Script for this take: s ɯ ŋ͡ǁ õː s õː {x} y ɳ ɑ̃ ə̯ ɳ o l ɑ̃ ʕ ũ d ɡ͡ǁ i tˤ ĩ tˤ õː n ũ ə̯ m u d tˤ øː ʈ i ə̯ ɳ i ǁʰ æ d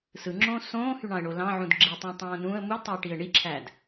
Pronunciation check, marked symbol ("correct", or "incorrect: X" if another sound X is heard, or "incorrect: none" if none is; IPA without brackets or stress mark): incorrect: h